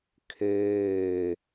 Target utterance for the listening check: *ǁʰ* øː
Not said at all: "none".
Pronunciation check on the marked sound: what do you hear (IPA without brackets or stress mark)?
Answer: kʰ